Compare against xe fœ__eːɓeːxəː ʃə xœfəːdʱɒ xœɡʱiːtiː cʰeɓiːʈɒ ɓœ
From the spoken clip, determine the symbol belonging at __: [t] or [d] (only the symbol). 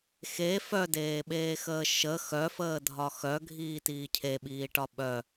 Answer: d